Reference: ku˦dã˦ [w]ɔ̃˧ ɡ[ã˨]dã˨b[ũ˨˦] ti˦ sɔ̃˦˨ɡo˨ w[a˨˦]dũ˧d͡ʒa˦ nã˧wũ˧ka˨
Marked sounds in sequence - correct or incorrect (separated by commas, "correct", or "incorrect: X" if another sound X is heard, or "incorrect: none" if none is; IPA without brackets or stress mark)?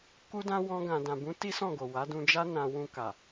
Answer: correct, correct, correct, correct